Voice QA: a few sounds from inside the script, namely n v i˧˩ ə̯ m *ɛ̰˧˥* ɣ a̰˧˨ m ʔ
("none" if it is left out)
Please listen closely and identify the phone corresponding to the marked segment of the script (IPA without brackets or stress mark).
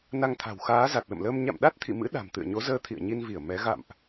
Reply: ɛ˨˦